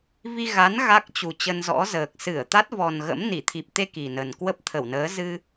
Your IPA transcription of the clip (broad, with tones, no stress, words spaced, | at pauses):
vi˧ɣa˨˦n ɣa˦˥k̚t͡ɕu˨˩ t͡ɕə˧nzɔ̰˧˥zəː˨˩k̚ sɨ˧˩ə̯t̪a˦˥t̚vɔ˨˩n ɣə̰˧˥mni˧˩ t̪ʰi˨˩p̚t̪e˧ ki˨˩nə˨˩n kwə˦˥p̚t̪ʰə˧˩wnəː˨˦ zɨ˧